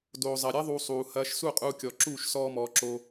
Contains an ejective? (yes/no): yes